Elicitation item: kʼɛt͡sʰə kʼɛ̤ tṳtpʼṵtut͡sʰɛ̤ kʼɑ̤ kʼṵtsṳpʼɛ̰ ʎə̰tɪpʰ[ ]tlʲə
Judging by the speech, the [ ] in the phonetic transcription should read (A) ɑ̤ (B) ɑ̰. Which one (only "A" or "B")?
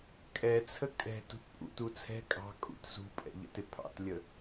B